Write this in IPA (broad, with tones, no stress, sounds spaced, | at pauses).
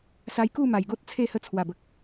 s a˧ j k u˥˧ m a˨˩ j ɡ o˦ t̚ t͡sʰ e˥˧ h ə˧ t͡sʰ w a˨˩ b ə˨ k̚